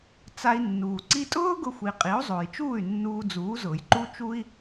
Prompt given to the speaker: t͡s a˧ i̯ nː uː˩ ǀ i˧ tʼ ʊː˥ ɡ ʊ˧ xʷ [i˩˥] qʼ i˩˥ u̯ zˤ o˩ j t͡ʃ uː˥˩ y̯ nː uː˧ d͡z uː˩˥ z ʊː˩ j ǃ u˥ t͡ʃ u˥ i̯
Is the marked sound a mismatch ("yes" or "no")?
yes